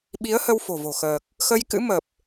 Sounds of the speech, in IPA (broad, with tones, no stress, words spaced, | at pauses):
ɓi˨˦ə̯hə˧w fo̤˨˩vo̤˨˩xəː˨˩k̚ | xə˧jkɨ̰˧˥ mə˨˩p̚